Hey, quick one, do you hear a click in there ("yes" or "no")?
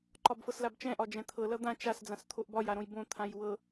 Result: yes